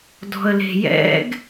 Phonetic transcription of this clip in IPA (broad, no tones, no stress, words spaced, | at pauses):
dɔ̤ə̯le̤jɛ̰ɡ